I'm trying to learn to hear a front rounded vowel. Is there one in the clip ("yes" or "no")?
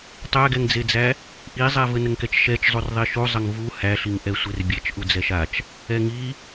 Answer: no